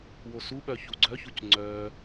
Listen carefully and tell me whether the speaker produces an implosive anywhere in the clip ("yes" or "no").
yes